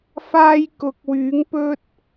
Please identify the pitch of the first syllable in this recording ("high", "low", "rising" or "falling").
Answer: high